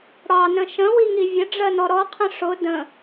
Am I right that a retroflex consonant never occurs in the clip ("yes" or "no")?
no